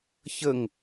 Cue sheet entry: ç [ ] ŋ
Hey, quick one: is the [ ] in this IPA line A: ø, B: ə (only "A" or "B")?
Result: B